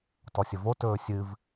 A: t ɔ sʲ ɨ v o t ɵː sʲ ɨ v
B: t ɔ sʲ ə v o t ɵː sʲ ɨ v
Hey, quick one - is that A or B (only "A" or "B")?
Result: B